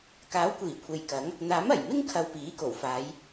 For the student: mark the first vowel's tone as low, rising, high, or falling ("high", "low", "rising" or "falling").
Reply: rising